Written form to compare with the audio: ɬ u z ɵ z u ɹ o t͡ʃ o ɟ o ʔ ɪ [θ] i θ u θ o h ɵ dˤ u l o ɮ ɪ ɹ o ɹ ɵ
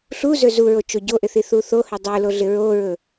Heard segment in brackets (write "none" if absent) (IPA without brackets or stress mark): θ